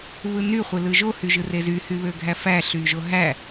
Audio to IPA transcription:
βɯny χʷelɯʒo hyʒɯrezy hyβøɡʱæfæ ɬyʒoɦæ

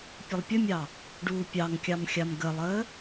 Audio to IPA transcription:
pʲəlˠpʲəmʲɑ | ɖuːpʲɑŋkʲɑmxʲam ɡəlˠəː

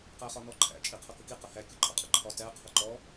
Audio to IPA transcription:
qæχɒnɔǃʰæ̰ t͡ʃʼiqʰʌkəki qəhæ kʲʊǃʼʌqʼəǃʰɒ tæ qʰʌǃɔ

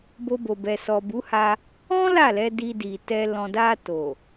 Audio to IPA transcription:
bo˧bo˨bɛ˨ sɔ˨bu˨˦ha˧ | ɔ̃˦ la˦˨lɛ˧ di˧di˨tɛ˧ lɔ̃˨da˧to˨

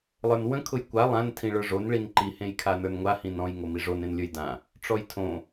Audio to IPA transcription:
lˠə˞nwə̃ kʰʊjkʷa lˠãn tʰĩɭə˞ʐon ɭinǃi hẽjkʰanə˞nŋʷa hĩnɔ̃j ŋomiʐon ẽnlʲə˞jdã | ʈ͡ʂɔjtʰõ

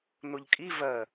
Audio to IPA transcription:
nʊʎkʼi vɜ

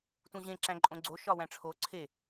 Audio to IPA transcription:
tũʑẽ ǁæ̃ǃʼõɡ͡ǀo ʃɒwæ̃ʈ͡ʂʰo ǀʰe

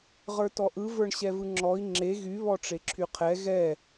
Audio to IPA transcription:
ʁə˞tɔʔɯ və˞ɳɕɛvɯŋ͡ǁɔi̯ ŋ͡ǁe ɣy βɔʈ͡ʂeǁʰyqʰɛ ɣɛ

